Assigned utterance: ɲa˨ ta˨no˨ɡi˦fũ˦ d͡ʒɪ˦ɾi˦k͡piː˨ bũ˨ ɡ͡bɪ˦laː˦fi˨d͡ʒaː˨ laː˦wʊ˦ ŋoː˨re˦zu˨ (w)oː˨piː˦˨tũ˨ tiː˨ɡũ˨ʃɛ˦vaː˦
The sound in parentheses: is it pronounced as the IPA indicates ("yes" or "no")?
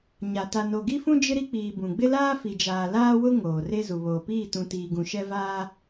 no